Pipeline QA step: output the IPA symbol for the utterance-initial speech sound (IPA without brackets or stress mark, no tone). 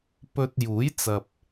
p